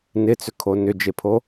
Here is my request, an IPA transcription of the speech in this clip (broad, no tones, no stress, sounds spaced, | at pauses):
n ɪ t͡s ʏ kʰ o n ʏ d͡ʒ e pʰ o